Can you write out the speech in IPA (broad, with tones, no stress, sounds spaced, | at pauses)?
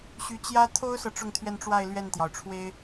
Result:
ɕ y˧˥ t͡ɕ j ä˥ t̪ʰ o˥ ʊ̯ s ɤ˨ ʈ͡ʂ ʊ˥˧ ŋ t̪ʰ ɥ ɛ˥˧ n ʈ͡ʂ w a˥˧ ɪ̯ l ɥ ɛ˥˩ n t̪ j ɑ˩ ʊ̯ ʈ͡ʂʰ w e˥ ɪ̯